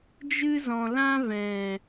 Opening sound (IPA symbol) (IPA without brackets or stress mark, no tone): d͡ʒ